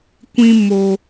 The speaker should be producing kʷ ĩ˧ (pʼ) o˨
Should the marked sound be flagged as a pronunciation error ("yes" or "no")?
yes